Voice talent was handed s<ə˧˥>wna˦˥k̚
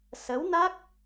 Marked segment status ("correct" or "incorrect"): correct